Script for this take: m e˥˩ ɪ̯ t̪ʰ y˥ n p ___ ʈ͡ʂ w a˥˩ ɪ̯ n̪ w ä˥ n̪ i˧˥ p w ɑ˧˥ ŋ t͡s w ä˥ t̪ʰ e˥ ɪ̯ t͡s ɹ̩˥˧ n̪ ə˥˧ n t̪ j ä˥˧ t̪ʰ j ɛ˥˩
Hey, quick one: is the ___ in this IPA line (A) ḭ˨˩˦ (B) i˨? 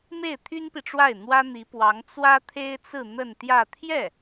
B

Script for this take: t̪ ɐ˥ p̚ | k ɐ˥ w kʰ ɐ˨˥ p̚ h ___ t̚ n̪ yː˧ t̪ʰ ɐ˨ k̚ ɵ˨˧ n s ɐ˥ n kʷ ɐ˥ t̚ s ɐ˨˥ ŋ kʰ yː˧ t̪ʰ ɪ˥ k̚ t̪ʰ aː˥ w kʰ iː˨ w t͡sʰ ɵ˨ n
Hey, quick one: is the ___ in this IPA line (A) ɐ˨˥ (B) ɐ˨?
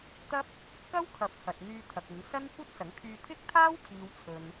B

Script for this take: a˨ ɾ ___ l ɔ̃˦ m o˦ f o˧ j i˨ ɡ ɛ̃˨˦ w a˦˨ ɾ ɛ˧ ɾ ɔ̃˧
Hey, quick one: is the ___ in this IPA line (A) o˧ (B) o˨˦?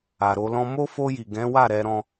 A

